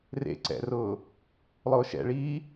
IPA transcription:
rḛ ǀɛ̰rʊː | lˠʊːʃɛ̰ɭiː

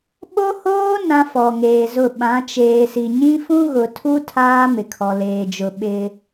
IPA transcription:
ɓo˦hoː˦ nã˦fɔ˨ŋeː˨zʊ˦˨ ɓã˨˦t͡ʃeː˨si˨ ɲĩ˦fũ˦ɣʊ˨tʰu˦ tʰaː˦ mɪ˨kʰɔ˨leː˨d͡ʒʊ˨ ɓɪ˦

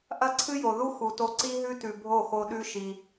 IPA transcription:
ʔɐ˦ǀʰɨ˦ jo˨ ðu˦ xu˨to˧ ǀi˦ɦʉ˦tʉ˨ bʱo˦˨xo˧ɗʉ˦ʃi˧

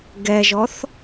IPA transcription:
ɡɛʒɔθ

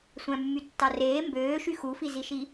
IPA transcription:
sʷæ̃mːytːɑreː mbøːʃy xufiziʃi

